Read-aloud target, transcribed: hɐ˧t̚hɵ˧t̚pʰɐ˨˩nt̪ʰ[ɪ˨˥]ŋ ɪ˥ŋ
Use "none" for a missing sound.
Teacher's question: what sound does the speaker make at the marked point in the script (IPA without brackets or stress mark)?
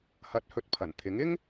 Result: ɪ˨˥